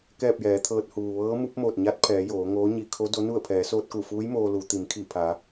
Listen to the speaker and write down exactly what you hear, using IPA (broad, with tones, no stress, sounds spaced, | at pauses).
k ɛː˥˨ p̚ j ɛː˩˧ t̪ʰ ɤː˧ t̚ h uː˩ ʋ ɤː˧˥ m u˧˥ p̚ m oː˧˩ t̚ ɲ a˧˥ t̚ pʰ ɛː˩˧ j oː˩˧ ŋ oː˧˥ ɲ i˧ kʰ o˧˥ d o˧˥ n u˥˨ ə̯ pʰ ɛː˩˧ s oː˧ t̚ k u˧˩ f uː˧˥ j m oː˧ l u˩˧ t̪ i˩˧ m kʰ i˧˩ pʰ a˩˧